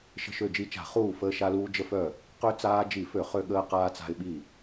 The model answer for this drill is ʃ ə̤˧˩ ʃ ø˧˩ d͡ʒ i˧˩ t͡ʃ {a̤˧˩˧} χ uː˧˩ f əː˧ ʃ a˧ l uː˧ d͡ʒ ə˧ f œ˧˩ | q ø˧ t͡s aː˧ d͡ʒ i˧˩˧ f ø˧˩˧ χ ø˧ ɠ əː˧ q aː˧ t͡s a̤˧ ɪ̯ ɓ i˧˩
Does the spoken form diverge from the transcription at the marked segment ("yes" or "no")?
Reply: no